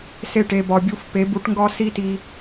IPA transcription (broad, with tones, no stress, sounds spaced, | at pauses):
s e˦˨ ʈ e˧ b ɒ˧ bʲ u˦ f p e˨˦ b u˨˦ ʈ ŋ ɡ ɒ˦ s i˦ t i˧